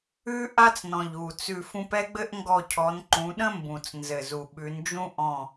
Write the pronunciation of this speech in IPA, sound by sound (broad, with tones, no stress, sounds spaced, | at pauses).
ʉ˥ ʔ a˥ t͡s n ɔ̃˨˩ ʎ u˨˩ t͡s ʉ˦˨ f ũ˥ p ɛ˥ ɡ͡b ɘ˥ ʔ ŋ ɡ ɔ˦˨ cʰ ɔ˨˦ n ǃ ũ˨˦ ɗ ə̃˥ m b ũ˨˩ t͡s n z ɘ˨˩ z u˨˩ ɓ ʉ˨˦ n d͡ʒ ũ˥ ʔ ɔ̃˦˨